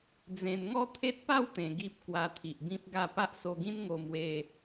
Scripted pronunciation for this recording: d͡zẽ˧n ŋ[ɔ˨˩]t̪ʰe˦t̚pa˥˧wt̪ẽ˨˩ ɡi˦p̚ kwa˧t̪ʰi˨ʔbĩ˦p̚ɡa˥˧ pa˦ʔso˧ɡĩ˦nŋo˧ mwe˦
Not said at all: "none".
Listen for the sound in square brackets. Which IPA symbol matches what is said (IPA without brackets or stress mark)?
ɔ˥˧